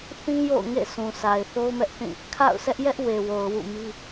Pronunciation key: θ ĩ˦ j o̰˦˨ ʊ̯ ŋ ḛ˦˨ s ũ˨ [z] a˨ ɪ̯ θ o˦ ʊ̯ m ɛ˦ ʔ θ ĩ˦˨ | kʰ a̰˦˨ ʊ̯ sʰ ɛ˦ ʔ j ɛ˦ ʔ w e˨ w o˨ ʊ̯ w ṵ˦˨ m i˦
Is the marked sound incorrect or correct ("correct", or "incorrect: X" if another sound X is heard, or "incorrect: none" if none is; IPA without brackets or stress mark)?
incorrect: s